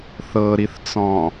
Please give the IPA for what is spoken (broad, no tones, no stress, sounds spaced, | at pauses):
θ ɤ ɾ i θ t͡s ɔ̃